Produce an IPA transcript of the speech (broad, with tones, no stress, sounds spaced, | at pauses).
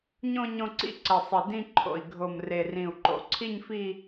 ɲ õ˥˧ ɲ õ˥˧ ǀ ḭ˥˧ ǀ ə˨˩ sˤ ɪ˨˩ d ĩ˥˧ ǃʰ o̰˨˩ i̯ ɡʱ o˨˩ m r e˨˩ r ĩ˨˩ u̯ ǃ o̰˨˩ ǀʰ i˥˧ ɲ f i˥˧